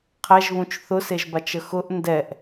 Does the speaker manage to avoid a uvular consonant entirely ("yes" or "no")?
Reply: no